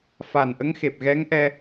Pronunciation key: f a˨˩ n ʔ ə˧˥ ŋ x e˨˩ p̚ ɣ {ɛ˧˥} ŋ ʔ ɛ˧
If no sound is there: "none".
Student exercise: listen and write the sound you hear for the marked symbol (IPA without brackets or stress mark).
ɛ˧˥